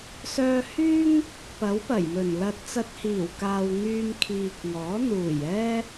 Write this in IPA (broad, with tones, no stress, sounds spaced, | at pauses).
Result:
s œː˧ h yː˥ ŋ | p ɐ˨˥ w p ɐ˨˩ j m ɵ˨˩ n l ɐ˧ t̚ t͡s ɐ˧ t̚ h iː˨˩ w k aː˨ w ŋ yː˧ m kʰ iː˨ k̚ ŋ ɔː˨˥ n̪ uː˨˩ j ɛː˥